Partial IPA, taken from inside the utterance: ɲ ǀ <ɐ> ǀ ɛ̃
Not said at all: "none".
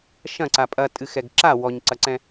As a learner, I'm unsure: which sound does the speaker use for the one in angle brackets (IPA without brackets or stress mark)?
ɐ